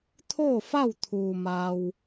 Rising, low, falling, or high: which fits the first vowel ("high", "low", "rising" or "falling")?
falling